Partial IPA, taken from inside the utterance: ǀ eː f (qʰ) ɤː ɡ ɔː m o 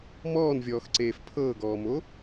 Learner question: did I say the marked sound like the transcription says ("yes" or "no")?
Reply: no